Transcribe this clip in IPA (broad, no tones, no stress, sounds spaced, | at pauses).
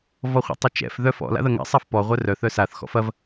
v ɔ χʷ ɛ̰ tˤ ɐ t͡ʃ ɛ̰ f ð œ f ɔ̰ l a̰ ð ɐ ŋ ɛ̰ sˤ a f p ɔ ʁʷ œ r œ θ œ s a θ x ɔ̰ f ɐ v